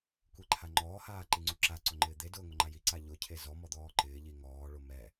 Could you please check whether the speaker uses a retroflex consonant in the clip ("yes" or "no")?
yes